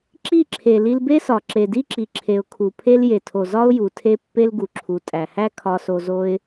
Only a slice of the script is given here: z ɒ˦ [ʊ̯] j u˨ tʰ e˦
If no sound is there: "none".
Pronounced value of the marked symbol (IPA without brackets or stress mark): ʊ̯